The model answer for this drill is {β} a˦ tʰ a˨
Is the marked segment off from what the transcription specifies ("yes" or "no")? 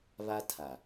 no